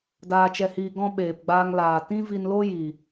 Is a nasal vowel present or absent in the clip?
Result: present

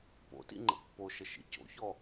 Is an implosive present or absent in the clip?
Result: absent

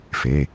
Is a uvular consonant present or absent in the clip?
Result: absent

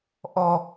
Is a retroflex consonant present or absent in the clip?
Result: absent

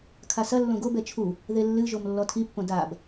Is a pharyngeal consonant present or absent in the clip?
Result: absent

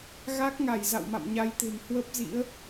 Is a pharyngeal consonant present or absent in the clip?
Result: absent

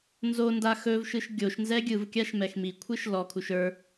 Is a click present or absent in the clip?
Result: absent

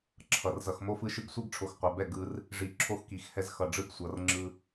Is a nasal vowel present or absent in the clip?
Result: absent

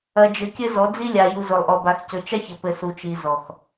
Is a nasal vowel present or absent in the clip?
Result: absent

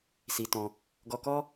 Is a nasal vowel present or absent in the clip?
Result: present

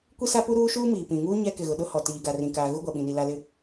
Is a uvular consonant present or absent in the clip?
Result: absent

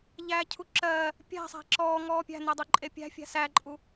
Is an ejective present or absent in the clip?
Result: present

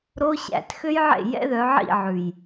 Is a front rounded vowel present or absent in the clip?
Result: present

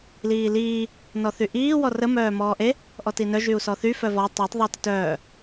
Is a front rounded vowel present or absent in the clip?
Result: present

